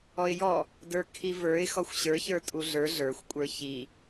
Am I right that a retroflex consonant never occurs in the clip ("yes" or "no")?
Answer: yes